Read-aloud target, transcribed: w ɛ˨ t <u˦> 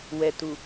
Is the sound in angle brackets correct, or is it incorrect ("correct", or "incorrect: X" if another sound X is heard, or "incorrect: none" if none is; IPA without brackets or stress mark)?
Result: incorrect: u˨